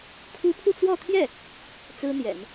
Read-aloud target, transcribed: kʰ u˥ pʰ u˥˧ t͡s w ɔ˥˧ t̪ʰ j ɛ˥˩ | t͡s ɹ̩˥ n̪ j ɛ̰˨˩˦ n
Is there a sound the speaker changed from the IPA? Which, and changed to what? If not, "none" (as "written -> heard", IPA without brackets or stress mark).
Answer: none